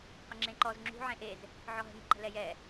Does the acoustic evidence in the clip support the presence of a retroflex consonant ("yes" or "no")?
no